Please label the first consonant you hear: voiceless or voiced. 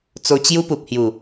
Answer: voiceless